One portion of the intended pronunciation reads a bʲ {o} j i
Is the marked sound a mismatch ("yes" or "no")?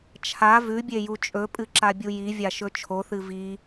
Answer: yes